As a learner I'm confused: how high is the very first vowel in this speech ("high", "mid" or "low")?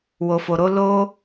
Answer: mid